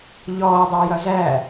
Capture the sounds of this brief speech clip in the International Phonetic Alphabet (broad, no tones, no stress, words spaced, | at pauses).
ʎɔːdˤæ jʌzæ